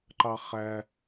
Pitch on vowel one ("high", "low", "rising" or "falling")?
high